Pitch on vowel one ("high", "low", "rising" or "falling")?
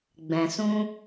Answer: low